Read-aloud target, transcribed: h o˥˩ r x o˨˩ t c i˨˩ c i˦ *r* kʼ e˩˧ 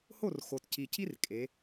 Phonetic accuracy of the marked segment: correct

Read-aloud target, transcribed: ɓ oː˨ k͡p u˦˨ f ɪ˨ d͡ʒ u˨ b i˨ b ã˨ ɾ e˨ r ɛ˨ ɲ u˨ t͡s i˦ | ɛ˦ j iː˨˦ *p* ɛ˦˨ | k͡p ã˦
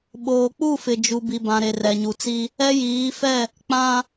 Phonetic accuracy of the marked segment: incorrect: f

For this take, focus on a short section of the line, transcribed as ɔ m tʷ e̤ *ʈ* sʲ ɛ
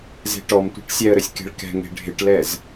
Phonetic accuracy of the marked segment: correct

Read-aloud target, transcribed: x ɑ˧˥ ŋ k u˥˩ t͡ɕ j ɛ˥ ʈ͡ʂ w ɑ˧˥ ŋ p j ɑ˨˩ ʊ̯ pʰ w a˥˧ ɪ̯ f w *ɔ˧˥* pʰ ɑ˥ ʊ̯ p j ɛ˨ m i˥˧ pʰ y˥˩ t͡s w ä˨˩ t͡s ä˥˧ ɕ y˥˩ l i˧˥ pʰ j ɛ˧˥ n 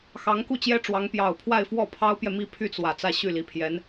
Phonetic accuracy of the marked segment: incorrect: ɔ˥˩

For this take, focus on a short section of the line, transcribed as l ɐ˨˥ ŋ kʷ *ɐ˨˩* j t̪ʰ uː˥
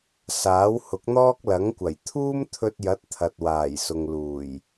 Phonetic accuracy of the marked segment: correct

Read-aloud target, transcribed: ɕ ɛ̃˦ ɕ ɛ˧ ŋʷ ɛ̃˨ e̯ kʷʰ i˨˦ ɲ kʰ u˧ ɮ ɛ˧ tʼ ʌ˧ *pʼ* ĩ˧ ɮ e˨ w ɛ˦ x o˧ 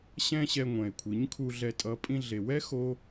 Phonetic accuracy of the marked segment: correct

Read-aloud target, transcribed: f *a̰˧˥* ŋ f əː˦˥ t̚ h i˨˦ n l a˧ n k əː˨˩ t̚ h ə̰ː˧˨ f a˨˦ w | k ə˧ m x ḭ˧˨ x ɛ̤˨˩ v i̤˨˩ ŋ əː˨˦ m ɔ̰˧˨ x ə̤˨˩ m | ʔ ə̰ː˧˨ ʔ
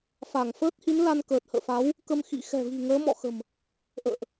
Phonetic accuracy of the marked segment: incorrect: a˧˩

